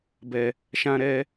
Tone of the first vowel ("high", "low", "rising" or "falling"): low